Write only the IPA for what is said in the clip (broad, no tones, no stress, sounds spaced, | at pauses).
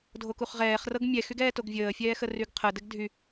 dʱ o k u χ ʁ ɛː χ r ɤ ɡ mʲ ɛ x y ɡ ɛː t o ɡ vʲ əː fʲ ɛː x ə r y ɡ qʰ ə d ɘ ɡ dʱ y